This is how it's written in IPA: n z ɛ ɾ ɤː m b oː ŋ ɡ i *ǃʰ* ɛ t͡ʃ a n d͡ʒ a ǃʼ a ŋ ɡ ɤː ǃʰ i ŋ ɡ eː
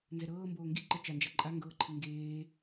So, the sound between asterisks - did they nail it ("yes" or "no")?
no